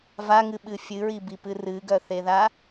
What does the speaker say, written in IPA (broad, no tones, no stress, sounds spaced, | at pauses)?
v a ŋ ɨ ɓ ɨ fʲ ɨ ɹ i b i p ɨ r ɨ ɡ œ θ e ð a